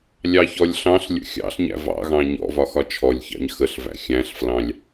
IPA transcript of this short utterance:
lʲɑçɔlʲɬɑ̃ɬlʲə̰ xʲɑ̰ɬɲæ̰ vɑ̰ɣɑ̃ ɲɔ̰vɒ xɒt͡ʃʰɔlʲçɑ̰ɲ xəɬvæ̰ xʲæ̃ɬflɑ̃lʲ

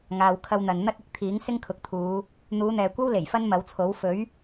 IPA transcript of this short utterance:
ŋaː˨wkʰɐ˧wn̪ɐ˨n n̪ɐ˥t̚ɪ˥k̚ t̪ʰiː˨˥ŋ sɪ˥ŋkʰʊ˨˥k̚t̪ʰuː˨˧ | n̪uː˨˧n̪ɛː˨ kʷɐ˥w le˨˩jfɐ˥nmɐ˨˥wt͡sʰo˨˥w fɵ˨˥ɥ

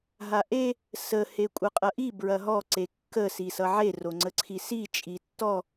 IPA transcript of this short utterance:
ɦaʔe | sə hekʷʼʌqʼɐʔi bɹɐɦɔ ǀekːə sisʌʕe roŋ͡ǀəǀʰisi t͡ʃʼitːɔ

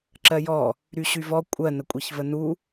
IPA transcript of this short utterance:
ǁɜjɔ | ɾyɕyvɔ kʷʼɜ nəkʷʼeçvənu

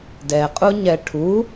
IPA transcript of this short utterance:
dɛqʼu ɲɛʈʰu

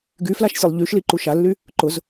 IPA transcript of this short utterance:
ɡyflaʃ sʲɐlˠʎyʃli ǃuʃalːy | ǃʊz

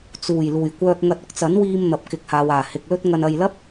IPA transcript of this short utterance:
t͡suː˨˩j luː˨˩jkʷœː˥k̚ŋɐ˥t̚ ʊ˥k̚t͡sɐ˨˥nwiː˧m n̪ɐ˨p̚kɪ˨k̚haː˨waː˨˩ hɪ˨k̚lɵ˥t̚ŋɐ˧n ɐ˨jlɐ˥p̚

